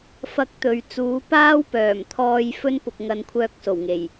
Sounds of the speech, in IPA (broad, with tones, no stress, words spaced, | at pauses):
fɐ˥k̚t̪ɵ˨˧ɥ t͡suː˨˥paː˥wpœː˨˩mt̪ʰɔː˧j fɵ˥npʊ˨k̚ŋɐ˨˧nkʷʰœː˧k̚ so˨˩wŋe˨˩j